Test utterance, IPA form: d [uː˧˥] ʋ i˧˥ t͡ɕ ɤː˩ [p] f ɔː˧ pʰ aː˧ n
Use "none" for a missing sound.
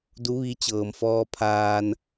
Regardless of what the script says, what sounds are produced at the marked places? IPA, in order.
u˧˥, m

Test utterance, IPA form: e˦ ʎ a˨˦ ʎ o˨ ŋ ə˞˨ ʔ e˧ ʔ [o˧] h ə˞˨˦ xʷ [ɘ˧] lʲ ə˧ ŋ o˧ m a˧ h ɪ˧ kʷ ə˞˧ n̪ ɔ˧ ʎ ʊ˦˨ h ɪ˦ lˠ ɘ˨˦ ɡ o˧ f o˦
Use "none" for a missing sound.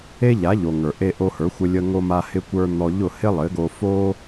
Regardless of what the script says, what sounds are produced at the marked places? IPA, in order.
o˧, ɘ˧

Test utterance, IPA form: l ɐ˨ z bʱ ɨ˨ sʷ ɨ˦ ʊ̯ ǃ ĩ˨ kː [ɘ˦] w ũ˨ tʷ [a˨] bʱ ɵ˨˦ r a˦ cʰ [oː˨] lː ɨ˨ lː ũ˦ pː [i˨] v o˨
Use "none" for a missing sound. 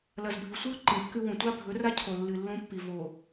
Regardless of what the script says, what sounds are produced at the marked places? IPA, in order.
ʉ˦, a˦, o˨, i˨

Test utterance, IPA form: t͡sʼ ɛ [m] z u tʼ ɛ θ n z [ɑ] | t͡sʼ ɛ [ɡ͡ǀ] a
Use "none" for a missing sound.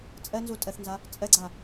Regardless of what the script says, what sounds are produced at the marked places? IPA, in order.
n, a, ɡ͡ǀ

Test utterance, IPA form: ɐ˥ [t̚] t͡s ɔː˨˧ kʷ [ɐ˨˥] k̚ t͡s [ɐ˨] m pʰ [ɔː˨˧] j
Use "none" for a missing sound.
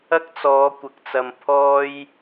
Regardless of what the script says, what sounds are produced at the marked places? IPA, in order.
k̚, ɐ˨, ɐ˨, ɔː˥

